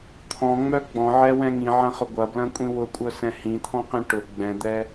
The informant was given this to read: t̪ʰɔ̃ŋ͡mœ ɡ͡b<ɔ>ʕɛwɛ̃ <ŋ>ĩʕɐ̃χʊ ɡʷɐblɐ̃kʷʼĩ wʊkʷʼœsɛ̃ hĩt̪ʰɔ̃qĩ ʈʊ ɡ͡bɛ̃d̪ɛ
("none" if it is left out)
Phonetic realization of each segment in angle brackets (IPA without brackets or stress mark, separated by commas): ɔ̃, ŋ